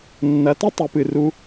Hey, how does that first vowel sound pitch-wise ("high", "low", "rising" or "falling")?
rising